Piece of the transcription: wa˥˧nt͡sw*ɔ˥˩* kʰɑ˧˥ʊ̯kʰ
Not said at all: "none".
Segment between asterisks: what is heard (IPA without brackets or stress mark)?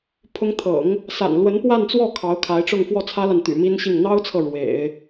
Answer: ɔ˥˩